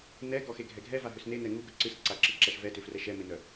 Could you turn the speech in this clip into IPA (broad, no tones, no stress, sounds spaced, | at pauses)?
n ɛ ɡ ɔ x e ɡʱ ɛ ɡʱ ɛ v a ɦ ʏ s n e n ɛ ŋ u ɡ ɵ ǀ ɨ s ǀ a ǁ ɨ ǁ a ʃ v ɛ t ʏ f r ɛ ʃ ɛ m e n œ